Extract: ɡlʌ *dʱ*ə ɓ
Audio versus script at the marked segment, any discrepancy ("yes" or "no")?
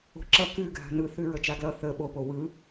yes